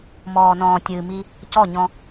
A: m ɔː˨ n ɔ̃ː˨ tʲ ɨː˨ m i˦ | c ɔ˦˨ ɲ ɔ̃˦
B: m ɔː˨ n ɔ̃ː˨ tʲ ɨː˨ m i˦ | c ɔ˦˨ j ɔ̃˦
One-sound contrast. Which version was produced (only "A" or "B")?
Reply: A